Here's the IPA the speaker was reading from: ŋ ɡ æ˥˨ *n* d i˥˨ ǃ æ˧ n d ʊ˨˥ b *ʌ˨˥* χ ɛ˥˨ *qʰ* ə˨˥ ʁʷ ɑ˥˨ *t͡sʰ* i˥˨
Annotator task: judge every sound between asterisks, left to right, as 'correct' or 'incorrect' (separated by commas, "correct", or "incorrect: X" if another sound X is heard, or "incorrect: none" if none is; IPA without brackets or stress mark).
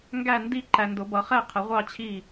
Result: correct, correct, correct, incorrect: t͡ɕʰ